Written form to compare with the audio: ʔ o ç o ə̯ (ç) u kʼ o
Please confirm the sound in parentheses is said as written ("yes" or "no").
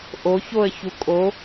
yes